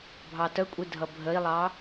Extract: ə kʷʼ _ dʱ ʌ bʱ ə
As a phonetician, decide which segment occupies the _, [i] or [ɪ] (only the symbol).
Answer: i